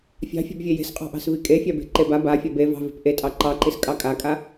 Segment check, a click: present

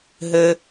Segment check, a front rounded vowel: absent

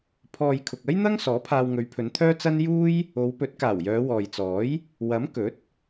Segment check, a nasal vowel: absent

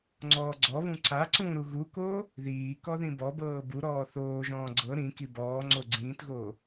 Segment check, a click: present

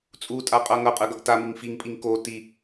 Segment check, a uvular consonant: present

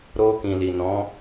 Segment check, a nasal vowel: present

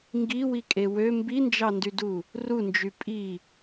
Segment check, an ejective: present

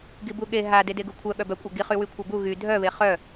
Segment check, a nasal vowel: absent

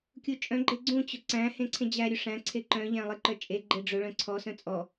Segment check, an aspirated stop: present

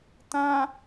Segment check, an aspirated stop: absent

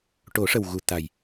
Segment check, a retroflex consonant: present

